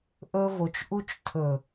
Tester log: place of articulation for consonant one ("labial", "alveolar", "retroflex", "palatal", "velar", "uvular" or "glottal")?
glottal